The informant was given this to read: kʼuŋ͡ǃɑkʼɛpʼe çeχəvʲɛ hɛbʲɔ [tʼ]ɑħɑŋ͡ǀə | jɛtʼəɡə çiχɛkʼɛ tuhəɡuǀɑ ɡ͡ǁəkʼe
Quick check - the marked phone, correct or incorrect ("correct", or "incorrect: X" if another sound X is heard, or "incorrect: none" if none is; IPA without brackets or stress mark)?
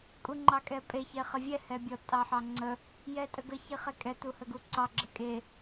correct